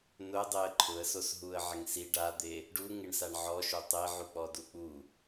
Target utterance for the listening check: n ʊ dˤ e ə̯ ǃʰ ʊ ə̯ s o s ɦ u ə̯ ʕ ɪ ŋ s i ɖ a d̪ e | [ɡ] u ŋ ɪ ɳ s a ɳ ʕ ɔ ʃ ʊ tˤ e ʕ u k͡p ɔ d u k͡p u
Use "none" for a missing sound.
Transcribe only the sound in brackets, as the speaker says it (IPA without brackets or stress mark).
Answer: ɖ